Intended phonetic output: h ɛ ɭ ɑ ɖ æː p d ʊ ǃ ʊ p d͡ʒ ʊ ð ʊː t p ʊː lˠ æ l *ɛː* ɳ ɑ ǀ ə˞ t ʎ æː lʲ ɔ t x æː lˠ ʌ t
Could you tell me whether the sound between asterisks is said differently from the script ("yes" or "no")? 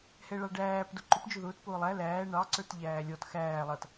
yes